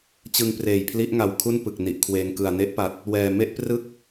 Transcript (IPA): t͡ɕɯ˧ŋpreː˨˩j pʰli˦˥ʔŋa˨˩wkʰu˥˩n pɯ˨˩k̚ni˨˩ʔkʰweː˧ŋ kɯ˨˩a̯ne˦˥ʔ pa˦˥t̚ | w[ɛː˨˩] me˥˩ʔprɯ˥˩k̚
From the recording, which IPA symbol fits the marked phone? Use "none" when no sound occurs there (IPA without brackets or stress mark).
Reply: ɛː˨˩